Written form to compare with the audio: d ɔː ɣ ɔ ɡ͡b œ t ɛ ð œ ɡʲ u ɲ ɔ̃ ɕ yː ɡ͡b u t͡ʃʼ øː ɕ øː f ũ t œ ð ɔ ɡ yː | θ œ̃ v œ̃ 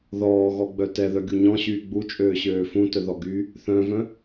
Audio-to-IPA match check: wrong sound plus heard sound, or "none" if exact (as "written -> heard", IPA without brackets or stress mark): d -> ð